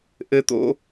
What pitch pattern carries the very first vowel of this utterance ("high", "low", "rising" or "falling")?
high